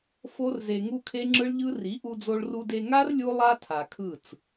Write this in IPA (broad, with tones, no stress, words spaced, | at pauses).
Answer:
fo˦rze˧ ŋu˦kʰe˦ŋ͡ǁɯ˦ɭʎɯ˦ ri˨˦ʔu˧d͡zo˧ɭru˧d e˧ŋa˦r lʲu˦lˠa˦tʰa˨kʰɯ˦˨t͡s